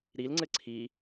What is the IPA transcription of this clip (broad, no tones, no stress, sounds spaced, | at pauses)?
ɾ i l ŋ͡ǀ ɘ ǀʰ i